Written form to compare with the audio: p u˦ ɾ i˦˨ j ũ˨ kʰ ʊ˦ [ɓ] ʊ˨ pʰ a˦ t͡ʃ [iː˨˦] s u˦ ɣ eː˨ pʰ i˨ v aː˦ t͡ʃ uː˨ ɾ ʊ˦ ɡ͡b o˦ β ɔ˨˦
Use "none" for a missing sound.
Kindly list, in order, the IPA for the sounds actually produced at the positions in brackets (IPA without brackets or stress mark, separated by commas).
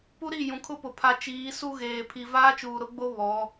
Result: p, iː˨˦